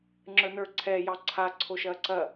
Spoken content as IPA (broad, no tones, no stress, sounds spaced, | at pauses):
ŋ͡ǁ ə˞ n ə˞ ǀʰ ɛ j ɑ ǀʰ a ǀʰ o ʃ ɐː ǀ ɐ